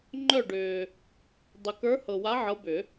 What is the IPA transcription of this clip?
ŋ͡ǃœ˦˨ɖʏː˨ | dˤʏ˨kə˞˧˥hɤ˨wa˧˥ ʕɤ˧˥bʏ˨˩˦

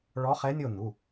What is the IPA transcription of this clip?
ɭɔ˧˥χɛ˧˥nʲo˦˨ n̪u˩˧˩

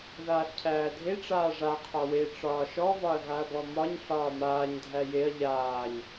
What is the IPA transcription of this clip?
ðaːɬcʰæːdʱe ʈ͡ʂaːʐa qʰɒwe ʈ͡ʂɒːʃɔ vɒɐ̯ɣaɐ̯bɔmɒɲ ɬɒːmaːɲ dʱæjeɐ̯ ʎaːɲ

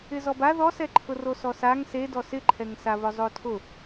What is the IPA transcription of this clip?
ɪzɔba ðɔsɛǃʰʊ rosɔsaŋ sedɔ sɪǃʰɛŋsa βʊzˤotʰʊ

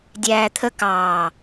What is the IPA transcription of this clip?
dʲæːt̪ʰə kɑː

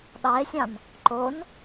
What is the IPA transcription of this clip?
ɗɑe̯sʲɑ̃n | ǃon

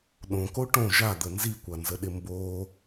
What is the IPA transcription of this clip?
ɗõko ʈõ ʒad̪ə nzikʷanzəɗɪ mbo

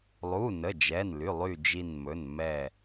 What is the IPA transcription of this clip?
lˠu˩˧˩ nə˩˧˩d͡ʒɛ˩˧˩nly˩˧˩lˠy˧˩ d͡ʒi˧˩nmɵ˩˧˩n mɛ˧˩

